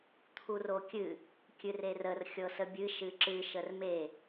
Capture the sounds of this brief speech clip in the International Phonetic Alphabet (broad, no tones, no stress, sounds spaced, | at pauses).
t̪ʰ u r o kʲ ɨ | kʲ ɨ r e r ə r xʲ ɤ s ə bʲ ɨ ʃ ɨ ǁ ɨ ʃ ə r m e